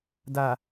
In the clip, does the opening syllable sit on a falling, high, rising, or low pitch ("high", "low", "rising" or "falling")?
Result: low